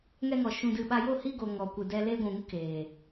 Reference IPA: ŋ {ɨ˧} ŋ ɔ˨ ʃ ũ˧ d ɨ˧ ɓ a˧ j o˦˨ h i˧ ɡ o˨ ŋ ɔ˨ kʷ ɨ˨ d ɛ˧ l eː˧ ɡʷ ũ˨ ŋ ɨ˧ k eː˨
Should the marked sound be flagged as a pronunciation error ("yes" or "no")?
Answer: yes